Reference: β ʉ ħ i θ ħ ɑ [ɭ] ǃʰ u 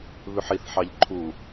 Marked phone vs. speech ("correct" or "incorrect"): incorrect